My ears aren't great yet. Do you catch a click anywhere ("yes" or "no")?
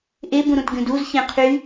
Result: no